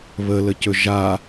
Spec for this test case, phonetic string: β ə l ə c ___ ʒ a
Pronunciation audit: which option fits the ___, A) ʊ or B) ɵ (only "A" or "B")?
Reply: B